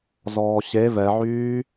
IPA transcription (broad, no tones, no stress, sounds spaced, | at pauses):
z ɔː ɕ e v ɛ ʕ yː